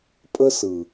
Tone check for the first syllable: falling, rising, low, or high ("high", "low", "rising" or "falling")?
high